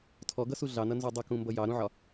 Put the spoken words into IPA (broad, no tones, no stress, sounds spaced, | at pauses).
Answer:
tʰ ɔ ɡ ʌ s u ɮ ɑ n ʌ n z o dˤ ʌ k ũ m b ʌ j ɑ ɾ ũ ʕ ɒ